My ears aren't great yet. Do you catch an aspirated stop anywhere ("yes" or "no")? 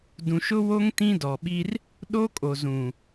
no